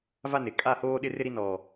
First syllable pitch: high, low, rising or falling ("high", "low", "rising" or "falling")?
high